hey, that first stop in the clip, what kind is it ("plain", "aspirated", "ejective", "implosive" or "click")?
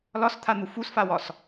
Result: aspirated